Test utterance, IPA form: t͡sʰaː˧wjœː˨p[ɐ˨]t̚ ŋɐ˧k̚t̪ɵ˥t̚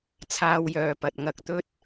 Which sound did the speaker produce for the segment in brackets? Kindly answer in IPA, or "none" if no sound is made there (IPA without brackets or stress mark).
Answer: ɐ˨